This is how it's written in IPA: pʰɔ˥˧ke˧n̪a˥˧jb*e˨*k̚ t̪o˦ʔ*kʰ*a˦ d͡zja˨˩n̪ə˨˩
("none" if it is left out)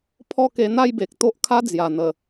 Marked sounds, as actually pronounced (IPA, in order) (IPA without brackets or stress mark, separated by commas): e˨, kʰ